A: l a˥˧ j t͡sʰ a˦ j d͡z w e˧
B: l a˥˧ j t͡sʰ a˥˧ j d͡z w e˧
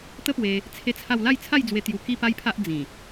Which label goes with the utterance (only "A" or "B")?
B